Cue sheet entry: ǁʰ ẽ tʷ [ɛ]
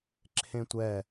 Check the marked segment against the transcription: correct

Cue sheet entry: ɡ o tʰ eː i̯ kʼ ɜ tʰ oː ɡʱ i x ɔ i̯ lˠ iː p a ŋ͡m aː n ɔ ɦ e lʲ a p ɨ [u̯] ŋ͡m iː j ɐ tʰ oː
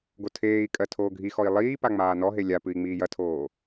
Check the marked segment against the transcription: incorrect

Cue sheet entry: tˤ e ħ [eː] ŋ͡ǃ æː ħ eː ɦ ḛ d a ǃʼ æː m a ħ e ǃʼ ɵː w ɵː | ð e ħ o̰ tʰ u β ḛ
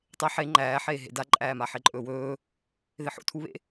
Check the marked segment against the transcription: incorrect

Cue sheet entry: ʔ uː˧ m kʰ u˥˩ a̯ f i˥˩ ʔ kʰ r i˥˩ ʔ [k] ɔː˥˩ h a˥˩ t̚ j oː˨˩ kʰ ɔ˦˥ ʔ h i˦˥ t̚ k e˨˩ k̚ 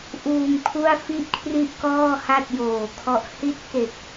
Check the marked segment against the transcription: correct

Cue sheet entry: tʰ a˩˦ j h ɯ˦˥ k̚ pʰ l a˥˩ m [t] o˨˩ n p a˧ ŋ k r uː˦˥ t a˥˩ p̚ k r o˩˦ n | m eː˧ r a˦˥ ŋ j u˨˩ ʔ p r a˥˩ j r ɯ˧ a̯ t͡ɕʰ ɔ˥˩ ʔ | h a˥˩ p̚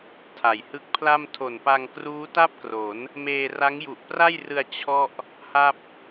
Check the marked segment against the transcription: incorrect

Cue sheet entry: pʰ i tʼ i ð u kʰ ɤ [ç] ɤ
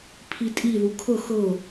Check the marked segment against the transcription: incorrect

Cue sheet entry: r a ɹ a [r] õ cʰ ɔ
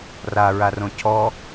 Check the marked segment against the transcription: correct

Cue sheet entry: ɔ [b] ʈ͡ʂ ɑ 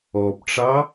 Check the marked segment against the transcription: correct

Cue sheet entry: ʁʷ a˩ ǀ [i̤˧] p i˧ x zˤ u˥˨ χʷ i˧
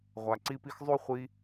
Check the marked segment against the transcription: incorrect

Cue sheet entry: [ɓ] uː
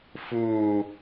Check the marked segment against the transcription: incorrect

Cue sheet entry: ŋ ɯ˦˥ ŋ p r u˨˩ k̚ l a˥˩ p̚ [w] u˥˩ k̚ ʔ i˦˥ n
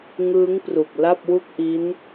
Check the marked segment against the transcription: correct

